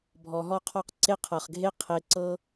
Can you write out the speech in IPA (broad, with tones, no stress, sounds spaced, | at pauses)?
bʱ ɔ˧ ɦ ɔ˥ qʰ ɔ˥ q ǀ e˥ qʰ ɤ˧ χ ɡʱ e˥ qʰ e˧ ǀ ɤ˥